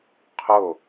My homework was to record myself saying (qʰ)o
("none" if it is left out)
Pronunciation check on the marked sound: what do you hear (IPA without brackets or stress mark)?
qʰ